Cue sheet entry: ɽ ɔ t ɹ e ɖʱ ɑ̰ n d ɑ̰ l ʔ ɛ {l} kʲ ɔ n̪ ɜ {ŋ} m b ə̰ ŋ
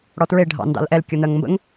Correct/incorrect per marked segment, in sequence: correct, correct

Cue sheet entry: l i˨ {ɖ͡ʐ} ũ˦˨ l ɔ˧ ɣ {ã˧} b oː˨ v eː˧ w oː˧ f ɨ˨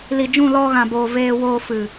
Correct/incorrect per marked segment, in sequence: incorrect, incorrect

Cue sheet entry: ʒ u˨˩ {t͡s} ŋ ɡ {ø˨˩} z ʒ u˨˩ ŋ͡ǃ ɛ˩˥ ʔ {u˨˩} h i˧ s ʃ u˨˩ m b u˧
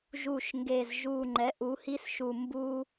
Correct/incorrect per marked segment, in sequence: incorrect, incorrect, incorrect

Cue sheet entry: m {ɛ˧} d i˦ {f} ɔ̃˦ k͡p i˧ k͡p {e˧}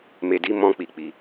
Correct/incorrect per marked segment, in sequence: incorrect, incorrect, incorrect

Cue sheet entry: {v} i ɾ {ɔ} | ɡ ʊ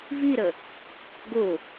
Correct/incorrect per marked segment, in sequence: correct, incorrect

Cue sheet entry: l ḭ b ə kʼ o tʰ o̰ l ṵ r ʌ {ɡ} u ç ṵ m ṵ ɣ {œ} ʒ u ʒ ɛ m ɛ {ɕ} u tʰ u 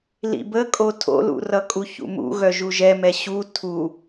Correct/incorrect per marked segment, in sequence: incorrect, correct, correct

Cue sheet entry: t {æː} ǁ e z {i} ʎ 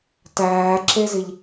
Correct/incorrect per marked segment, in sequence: correct, correct

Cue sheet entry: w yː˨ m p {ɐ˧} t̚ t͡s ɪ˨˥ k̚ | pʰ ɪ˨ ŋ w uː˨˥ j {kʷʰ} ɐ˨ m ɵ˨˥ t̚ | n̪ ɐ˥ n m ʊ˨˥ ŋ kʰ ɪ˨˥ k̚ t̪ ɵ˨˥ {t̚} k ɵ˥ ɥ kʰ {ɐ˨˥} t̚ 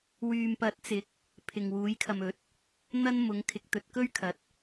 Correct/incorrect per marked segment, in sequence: incorrect, incorrect, correct, correct

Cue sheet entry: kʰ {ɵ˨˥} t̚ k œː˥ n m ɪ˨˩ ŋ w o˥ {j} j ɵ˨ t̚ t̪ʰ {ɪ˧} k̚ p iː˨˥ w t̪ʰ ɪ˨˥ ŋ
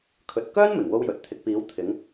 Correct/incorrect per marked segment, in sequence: incorrect, incorrect, correct

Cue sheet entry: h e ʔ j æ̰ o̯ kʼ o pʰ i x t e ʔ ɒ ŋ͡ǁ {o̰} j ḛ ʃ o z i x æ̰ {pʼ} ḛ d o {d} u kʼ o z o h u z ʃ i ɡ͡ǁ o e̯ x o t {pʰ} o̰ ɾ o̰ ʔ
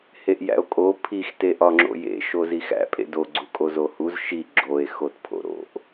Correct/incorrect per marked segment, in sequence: correct, correct, incorrect, correct

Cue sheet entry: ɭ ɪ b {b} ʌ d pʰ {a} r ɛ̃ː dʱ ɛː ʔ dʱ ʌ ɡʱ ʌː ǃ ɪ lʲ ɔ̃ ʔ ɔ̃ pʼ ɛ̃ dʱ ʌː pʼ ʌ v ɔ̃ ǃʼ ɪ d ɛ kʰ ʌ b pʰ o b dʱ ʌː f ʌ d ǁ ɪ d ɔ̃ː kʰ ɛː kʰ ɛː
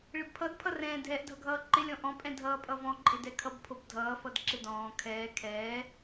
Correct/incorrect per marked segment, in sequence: incorrect, incorrect

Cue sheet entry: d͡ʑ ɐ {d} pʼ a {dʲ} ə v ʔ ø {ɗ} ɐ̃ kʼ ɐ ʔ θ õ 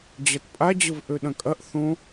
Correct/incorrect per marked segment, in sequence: incorrect, incorrect, correct

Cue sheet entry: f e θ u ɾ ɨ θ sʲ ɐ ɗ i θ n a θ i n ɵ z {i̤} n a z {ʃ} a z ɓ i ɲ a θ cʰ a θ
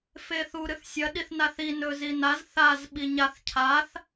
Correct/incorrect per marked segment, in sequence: incorrect, incorrect

